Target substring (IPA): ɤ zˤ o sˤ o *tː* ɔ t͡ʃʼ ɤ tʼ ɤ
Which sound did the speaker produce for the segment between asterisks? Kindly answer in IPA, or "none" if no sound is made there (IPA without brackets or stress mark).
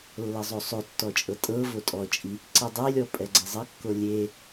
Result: tː